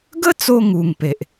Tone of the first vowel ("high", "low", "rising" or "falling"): high